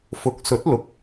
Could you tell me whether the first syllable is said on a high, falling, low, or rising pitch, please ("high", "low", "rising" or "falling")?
rising